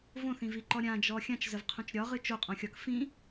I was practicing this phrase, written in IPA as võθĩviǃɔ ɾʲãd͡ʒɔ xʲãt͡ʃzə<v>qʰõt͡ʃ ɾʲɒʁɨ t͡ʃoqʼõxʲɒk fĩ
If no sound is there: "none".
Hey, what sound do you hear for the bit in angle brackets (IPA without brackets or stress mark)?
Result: v